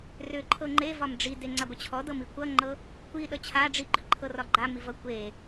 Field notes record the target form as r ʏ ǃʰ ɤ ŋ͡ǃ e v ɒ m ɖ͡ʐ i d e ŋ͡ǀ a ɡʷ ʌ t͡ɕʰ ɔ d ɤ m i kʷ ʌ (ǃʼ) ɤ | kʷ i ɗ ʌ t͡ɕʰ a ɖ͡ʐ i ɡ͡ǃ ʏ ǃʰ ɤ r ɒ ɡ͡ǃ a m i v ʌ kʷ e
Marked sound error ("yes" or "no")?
yes